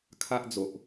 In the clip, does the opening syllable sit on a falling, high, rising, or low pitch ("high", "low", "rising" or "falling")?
high